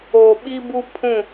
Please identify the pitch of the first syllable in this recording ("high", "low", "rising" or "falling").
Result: low